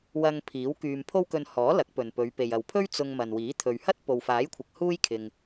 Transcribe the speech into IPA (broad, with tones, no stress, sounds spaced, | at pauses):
w ɐ˧ ŋ pʰ iː˨˥ w k yː˧ m pʰ o˥ w k ɵ˧ n h ɔː˨˥ l ɐ˨˥ k̚ p ɵ˨ n p ɵ˨˧ ɥ p e˨ j ɐ˨ w pʰ ɵ˥ ɥ t͡s ʊ˧ ŋ m ɐ˨ n w iː˨˥ t̪ʰ ɵ˨ ɥ h ɐ˥ t̚ p o˨ w f aː˨˥ j kʷʰ ɪ˨ k̚ h uː˥ j kʰ ɪ˨ ŋ